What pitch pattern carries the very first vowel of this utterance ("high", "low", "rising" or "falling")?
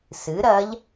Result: rising